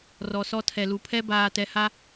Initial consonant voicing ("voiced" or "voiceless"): voiced